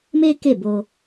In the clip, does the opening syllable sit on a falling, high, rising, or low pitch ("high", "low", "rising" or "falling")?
high